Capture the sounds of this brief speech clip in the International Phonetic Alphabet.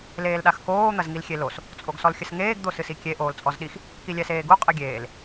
leːlɗaxkoː n̪ɐzŋilxʲelos | t͡sʼoɡsɔlxʲɘsŋeːɡ d̪osɨsikʲe ʔoːlt͡sʼɔzɗix | kilʲɛseːɡu qʼɨɡʲeːl

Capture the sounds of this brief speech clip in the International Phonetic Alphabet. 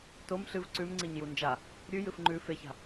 tom ɬɨv ǀʉmŋ͡ǀiɲ jund͡ʒa | ɾʲʉ jɨfŋ͡ǃʉ feça̤

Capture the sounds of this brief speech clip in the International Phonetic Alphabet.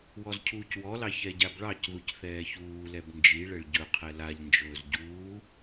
wɔzcʰuːcwɔlɑ çɛɟabɭɑcðuc θɛːçuːlɛb nd͡ʒi ɭɛɭɟɵqʰɛ laʎnd͡ʒɵːz ɟuː

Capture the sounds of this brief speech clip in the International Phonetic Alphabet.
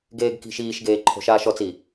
ɡeːɡki̤ʃiːʃɡeː ǃʰo̤ʃaːʃɔt͡siː

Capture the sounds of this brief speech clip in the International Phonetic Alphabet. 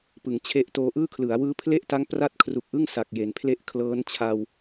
pɯ˩˦ŋt͡ɕʰe˦˥ʔtoː˦˥ ʔɯː˥˩kʰlɯ˩˦a̯ wɯː˦˥pʰle˥˩ʔta˦˥ŋ pra˥˩t̚kʰru˨˩k̚ʔɯ˥˩ŋ sa˨˩k̚je˩˦npʰle˥˩ʔ kʰlɤː˦˥nt͡ɕʰa˧w

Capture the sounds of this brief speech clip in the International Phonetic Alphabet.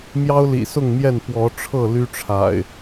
mjɑ˦ʊ̯lḭ˨˩sʊ˥˨ŋmjɛ˥˨n pwɔ˨˦ʈ͡ʂʰɤ˥˨ ly˦ʈ͡ʂʰa̰˨˩ɪ̯

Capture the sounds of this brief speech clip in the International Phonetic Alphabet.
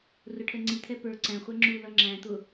rʊʈʰɛŋ͡ǀit̪ʰɛ pə˞ ǀæ̃χʷɛ ŋ͡ǁulʌ ŋ͡ǁæ̃t̪ʊ

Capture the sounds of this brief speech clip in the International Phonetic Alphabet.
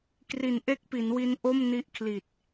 kri˨˩nʔe˦˥k̚pi˩˦nwi˧n ʔo˥˩mni˦˥ʔkʰli˨˩t̚

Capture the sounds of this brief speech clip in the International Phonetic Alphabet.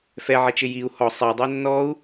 fɛʕɛt͡ʃɪ jiu̯ hɔ sˤɛdˤo nːɔu̯

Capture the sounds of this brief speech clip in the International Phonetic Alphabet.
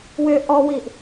wʏ ʔɔwiʔ

